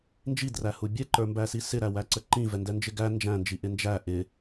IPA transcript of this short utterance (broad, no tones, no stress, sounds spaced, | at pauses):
n d͡ʒ i d r æ h u bʲ ɛ ǃ ə˞ m b æ s i s ɪ ɾ æ w æ ǀ ə ǃ ĩ v ɛ n d ɛ n d͡ʒ ɪ ɡ æ n d͡ʒ æ̃ n d͡ʒ i ʔ ɪ n d͡ʒ æ ʔ ɪ